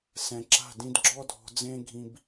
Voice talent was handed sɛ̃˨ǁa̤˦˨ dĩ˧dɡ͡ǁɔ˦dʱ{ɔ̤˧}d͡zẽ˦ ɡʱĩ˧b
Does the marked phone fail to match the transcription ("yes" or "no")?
no